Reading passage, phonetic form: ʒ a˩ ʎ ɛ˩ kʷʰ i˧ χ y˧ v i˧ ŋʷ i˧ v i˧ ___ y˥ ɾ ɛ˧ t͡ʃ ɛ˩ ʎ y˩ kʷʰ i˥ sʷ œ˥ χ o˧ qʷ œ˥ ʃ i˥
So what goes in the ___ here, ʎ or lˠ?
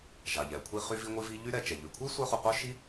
ʎ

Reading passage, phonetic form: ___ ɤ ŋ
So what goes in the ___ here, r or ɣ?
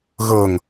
ɣ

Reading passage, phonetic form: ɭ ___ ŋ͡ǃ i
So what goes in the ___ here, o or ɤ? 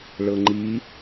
ɤ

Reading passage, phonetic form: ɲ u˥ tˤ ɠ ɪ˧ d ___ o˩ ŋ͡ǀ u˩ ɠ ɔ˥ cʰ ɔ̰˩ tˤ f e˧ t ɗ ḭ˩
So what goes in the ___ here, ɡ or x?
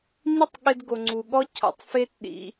ɡ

